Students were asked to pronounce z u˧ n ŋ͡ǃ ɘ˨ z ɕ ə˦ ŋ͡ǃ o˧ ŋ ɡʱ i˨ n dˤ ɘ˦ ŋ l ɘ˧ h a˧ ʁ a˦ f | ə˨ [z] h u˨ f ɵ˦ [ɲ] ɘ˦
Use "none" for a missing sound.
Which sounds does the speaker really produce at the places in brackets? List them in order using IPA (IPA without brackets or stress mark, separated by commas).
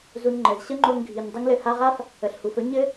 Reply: ɬ, ɲ